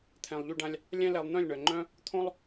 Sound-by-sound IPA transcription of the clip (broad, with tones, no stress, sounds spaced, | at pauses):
t̪ʰ ɛ̃˨ lˠ ʎ y˧ ɖ ã˧ lʲ | lʲ ɛ̃˦ l ɛ˧ lˠ n̪ œ̃˦˨ lʲ ɳ œ˨ ŋ͡ǃ œ̃˦ | t̪ʰ õ˦ lˠ